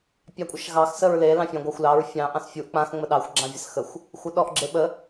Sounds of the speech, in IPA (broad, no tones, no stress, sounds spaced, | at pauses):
pʲ ɑ kʷʼ ɐ ʃ ɣ ɑ x s ə ɹ l e l ɑ̃ fʲ ɑ̃ ɡʷ a xʷ l ɑ ɹ fʲ ɑ̃ ʔ ɑ̃ s fʲ u ʔ k͡p ã x ŋ͡m ə ɗ ɑ xʷ ɡ͡ǁ ã vʲ ə s x ə xʷ | xʷ ɐ ɗ ɔ ʔ ɡ͡ǁ e ɓ ə